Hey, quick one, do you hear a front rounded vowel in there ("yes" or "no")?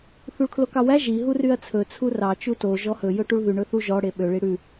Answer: yes